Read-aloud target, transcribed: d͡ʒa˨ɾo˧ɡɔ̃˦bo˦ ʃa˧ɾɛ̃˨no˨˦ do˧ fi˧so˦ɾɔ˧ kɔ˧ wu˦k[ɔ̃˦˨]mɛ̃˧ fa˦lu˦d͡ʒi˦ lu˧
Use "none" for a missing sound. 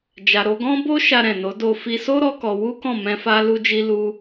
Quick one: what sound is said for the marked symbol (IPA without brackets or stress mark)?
ɔ̃˦˨